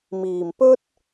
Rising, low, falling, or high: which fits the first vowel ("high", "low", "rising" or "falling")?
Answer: low